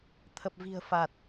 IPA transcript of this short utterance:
t̪ʰ ə˨˩ p̚ v i̤˨˩ ə̯ f a˨˩ t̚

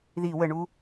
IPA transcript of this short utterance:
ð i w ə ɳ u

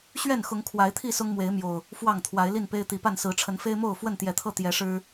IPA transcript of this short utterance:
ɕ ɥ ɛ˥˨ n x ʊ˨˦ ŋ kʰ w a˨˦ ɪ̯ t̪ʰ i˥˨ s ʊ˦ ŋ m w e˨˦ ɪ̯ m j o˨˩ ʊ̯ | f w ɑ˥˨ ŋ t̪ʰ w a˨˦ ɪ̯ l i˥˨ n p e˦ ɪ̯ t̪ i˨˦ p a˥˨ n s ɹ̩˨˦ ʈ͡ʂʰ ə˨˦ n f e˦ ɪ̯ m o˥˨ ʊ̯ f w ə˥˨ n t̪ j ɛ˨˦ t̪ʰ ɤ˥˨ t̪ j ɛ˨˦ ʂ ɻ̩˦

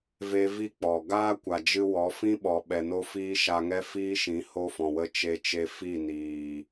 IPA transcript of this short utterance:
v e˦ v i˦ k͡p ɔ˨ ɡ aː˦ kʷ a˨ d͡ʒ ɨ˧ w ɔ˨˦ f ĩ˦ ɓ ɔ˨ ɓ ɛ˨ n o˧ f iː˧ ʃ a˧ ŋ ɛ˦ f iː˦ ʃ ĩ˨˦ h o˦ f ɔ̃˨ w ə˦ t͡ʃ e˧ t͡ʃ e˧ f i˦˨ n iː˨

